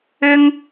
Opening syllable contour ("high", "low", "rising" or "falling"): high